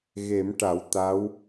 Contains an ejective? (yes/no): no